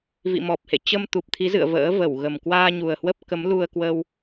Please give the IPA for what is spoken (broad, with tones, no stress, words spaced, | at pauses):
vḭ˧˨mɔ˨˩p̚hḛ˧˨ t͡ɕə˧mt̪u˨˩p̚t̪ʰi˨˦zɨ̰˧˨ə̯ və̰ː˧˥ və˧˩wɣə˨˩m kwaː˧ɲu˨˩ə̯hwə˦˥p̚kə˨˦m lu˧ə̯kwə˧w